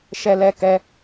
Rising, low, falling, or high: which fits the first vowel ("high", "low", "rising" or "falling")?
high